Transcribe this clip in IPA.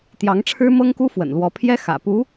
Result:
t̪jɑ˧˥ŋʈ͡ʂʰɻ̩˥mɤ˥ŋku˥ fwə̰˨˩nlwɔ˧˥pʰjɛ˥ xä̰˨˩ pu˧˥

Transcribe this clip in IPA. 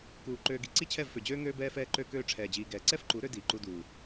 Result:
kuː˨ ǃøː˨ɡi˨ ǀi˦t͡ɕʰɛ˦˨vfø˨d͡ʑøː˦ ŋøː˧bɛː˧fɛː˧ ǃø˧køː˧ ʈ͡ʂʰɛː˨d͡ʑiː˨ɡɛː˨ ǀɛ˦fǃu˨˦ ɾø˦ diː˨ǃu˧duː˨

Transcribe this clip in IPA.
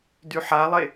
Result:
dyħalˠe

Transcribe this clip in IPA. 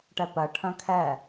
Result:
ʈɛpɜ ʈʰœ̃kʰɛ

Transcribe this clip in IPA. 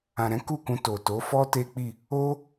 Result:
ã˨ɾɛ̃˨˦ ku˦˨kũ˧to˨to˨˦ fɔ˦ te˦k͡pi˦˨ | o˦

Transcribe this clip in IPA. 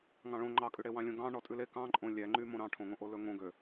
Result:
ŋɑ̃ɭõ ŋ͡ǃɑkʼʉɽewɑ̃ lʲõɡɑ̃ ɳɔtʼʉle kɑ̃ǃʼõ lʲæŋ͡ǃy mõɾɑ̃ʈʰõŋõ ʔolɵŋõ ɡø

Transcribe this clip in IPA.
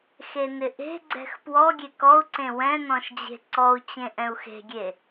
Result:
xenɪʔe̤ ɡ͡ǀɛ̤xpwɔ ɡʲekɔu̯ǀẽ wɛ̃nɔ̃ʃd͡ʑe̤ ǀɔu̯t͡ɕẽ ʔɛ̃u̯xe̤ɡʲe

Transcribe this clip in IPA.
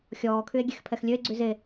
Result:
xʲɔːkʰye̯ ɡʲexpʰɛxlʲøe̯ɡ͡ǀy ze

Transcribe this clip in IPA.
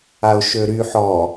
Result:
aʊ̯ʃøɾy ħɔ

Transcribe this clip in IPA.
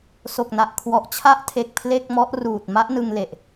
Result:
so˨˩k̚na˨˩ʔ kʰwɔ˨˩ʔt͡ɕʰa˦˥ʔtʰe˨˩k̚ pʰle˥˩k̚mɔ˦˥ʔ ruː˨˩t̚ ma˦˥ʔnɯ˧ŋle˨˩ʔ

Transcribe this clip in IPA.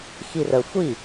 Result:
xirə xʷi

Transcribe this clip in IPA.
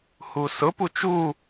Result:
husʊpu t͡ʃu

